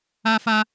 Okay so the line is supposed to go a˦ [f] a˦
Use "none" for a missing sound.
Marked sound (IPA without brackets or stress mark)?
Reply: f